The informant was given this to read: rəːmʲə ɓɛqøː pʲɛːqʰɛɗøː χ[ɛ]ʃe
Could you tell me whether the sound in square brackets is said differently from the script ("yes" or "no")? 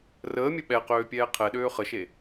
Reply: yes